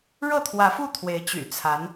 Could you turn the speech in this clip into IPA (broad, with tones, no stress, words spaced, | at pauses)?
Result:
ɻɤ˥˩t̪ʰwä˧˥fu˥˩ t̪ʰwe˧˥ɪ̯t͡ɕy̰˨˩t͡sʰa˧˥n